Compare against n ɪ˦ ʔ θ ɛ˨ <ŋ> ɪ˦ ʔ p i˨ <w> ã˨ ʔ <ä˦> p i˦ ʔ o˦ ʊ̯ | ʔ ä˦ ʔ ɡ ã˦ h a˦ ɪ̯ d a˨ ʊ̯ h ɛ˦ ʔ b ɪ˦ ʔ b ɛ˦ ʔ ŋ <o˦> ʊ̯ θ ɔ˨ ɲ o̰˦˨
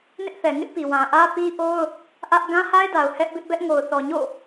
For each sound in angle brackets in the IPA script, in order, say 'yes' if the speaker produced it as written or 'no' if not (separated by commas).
yes, yes, yes, no